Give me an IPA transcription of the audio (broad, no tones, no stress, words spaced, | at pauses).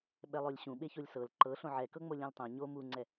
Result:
ɓɛlˠolʲɕũɓe çolʲsɤl ǃɤ ɬõʕɛkɤŋ͡mo lʲõltˤõ ɲo muŋ͡ǀɛ